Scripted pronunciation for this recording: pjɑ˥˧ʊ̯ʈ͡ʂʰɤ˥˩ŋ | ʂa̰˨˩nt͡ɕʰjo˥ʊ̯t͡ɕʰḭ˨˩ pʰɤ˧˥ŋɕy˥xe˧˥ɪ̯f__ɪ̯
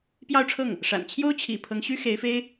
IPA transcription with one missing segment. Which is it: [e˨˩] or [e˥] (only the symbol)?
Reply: e˥